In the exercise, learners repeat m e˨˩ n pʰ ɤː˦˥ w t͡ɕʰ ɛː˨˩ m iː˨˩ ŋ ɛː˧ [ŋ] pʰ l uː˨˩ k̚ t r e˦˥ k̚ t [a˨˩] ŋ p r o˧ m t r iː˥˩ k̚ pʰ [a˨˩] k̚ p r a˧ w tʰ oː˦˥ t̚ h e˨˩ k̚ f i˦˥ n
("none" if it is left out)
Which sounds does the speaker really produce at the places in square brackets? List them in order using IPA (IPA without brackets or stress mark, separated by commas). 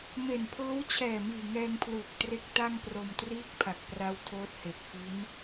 ŋ, a˥˩, a˨˩